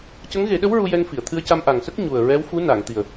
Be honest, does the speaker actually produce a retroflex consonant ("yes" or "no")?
no